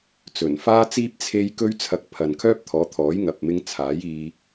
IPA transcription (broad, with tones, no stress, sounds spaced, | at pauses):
t͡s ɵ˨˩ n f aː˥ t͡s iː˥ p̚ t͡sʰ e˧ j k ɵ˥ ɥ t͡sʰ ɐ˧ k̚ pʰ ɐ˨ n kʰ œː˥ p̚ t̪ʰ ɔː˨˥ t̪ʰ ɔː˨˥ j ŋ ɐ˨ p̚ m ɪ˧ ŋ t͡sʰ aː˨˥ j iː˧